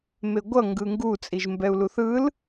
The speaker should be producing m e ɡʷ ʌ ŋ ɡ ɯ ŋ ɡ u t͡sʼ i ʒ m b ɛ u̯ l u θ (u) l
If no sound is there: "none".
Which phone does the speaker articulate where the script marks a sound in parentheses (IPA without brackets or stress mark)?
ɯ